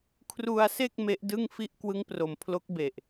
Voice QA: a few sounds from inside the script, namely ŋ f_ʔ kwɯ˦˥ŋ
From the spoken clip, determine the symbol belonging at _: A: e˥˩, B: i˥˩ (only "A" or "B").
B